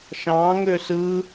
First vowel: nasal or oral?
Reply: nasal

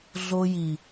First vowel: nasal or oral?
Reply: oral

